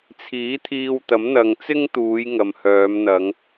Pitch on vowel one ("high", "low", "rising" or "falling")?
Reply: rising